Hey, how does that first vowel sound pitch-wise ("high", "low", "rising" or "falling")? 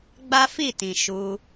high